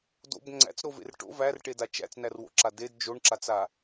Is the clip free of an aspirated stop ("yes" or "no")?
yes